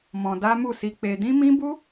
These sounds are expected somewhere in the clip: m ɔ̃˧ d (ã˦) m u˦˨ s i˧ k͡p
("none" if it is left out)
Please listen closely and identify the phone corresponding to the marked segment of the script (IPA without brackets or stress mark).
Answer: a˦